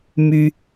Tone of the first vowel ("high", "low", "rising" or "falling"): high